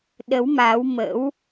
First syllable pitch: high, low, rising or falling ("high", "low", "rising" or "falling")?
rising